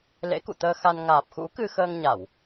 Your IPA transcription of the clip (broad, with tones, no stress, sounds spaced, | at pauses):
l ḛ˧˥ k ṵ˧˨ t̪ əː˧ x a˧ n ŋ aː˨˩ p̚ x ṵ˧˥ k ɨ˧ x əː˧ ŋ ɲ a˧˩˨ w